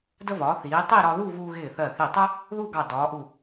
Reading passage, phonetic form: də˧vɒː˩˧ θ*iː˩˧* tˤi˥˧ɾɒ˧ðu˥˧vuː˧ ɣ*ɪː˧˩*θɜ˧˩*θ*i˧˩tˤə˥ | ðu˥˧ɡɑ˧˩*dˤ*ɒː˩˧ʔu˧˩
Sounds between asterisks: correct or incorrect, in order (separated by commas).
correct, correct, correct, incorrect